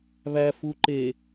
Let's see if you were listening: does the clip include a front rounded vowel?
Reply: no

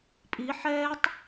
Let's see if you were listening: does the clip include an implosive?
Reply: no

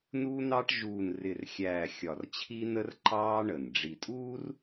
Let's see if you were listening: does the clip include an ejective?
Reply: yes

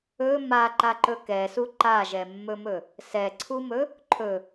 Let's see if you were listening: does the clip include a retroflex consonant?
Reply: no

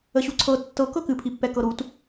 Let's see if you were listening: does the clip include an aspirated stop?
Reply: yes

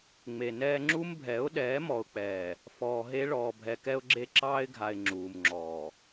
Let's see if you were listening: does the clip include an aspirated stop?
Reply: no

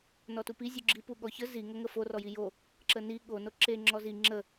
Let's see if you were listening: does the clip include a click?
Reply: yes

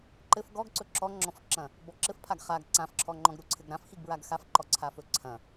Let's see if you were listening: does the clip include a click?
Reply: yes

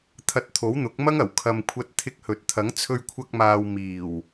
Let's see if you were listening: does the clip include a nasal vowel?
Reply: no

